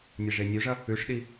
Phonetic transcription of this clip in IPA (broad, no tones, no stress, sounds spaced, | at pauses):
nʲ e ʐ e nʲ ʉ ʐ ɐ | ʉ ʂ ɗ i